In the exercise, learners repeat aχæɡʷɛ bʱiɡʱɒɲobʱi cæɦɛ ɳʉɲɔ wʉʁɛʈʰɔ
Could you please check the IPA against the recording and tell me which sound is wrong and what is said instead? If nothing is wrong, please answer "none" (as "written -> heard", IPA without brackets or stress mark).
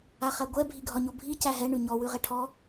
none